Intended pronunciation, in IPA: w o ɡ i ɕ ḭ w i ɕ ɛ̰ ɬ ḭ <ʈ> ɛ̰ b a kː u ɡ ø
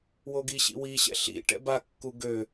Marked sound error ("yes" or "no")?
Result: no